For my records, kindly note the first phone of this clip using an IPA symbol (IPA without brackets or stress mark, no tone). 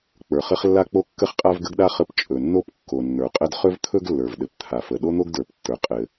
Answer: k͡p